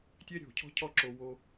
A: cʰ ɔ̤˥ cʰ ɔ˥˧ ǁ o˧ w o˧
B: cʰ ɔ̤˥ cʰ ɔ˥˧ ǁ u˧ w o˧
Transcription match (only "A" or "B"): A